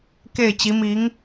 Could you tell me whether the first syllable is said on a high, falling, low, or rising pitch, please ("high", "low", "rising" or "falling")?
falling